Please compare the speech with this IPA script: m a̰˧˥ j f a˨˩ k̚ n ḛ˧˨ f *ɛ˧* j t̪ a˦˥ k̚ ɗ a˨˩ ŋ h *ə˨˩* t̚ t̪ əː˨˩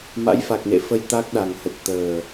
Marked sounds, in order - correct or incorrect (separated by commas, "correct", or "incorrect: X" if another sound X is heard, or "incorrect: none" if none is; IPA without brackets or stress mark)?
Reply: incorrect: ə˧, correct